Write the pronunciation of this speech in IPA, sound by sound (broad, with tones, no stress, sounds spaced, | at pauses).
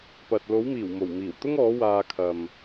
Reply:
p ɐ˨ t̚ l o˨˥ w m iː˨˩ w m o˨˩ w m iː˨˩ w t̪ ʊ˥ ŋ ɔː˨˥ w aː˧ kʰ ɐ˨ m